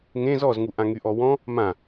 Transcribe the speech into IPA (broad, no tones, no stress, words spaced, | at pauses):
ŋẽ zɔzŋuʔã ŋyʔɔwɔ̃ | mã